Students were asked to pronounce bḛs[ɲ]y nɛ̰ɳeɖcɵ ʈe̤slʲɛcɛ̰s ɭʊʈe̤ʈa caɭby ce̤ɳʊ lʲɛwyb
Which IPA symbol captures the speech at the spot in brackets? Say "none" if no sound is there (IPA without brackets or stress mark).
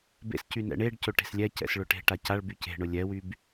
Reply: c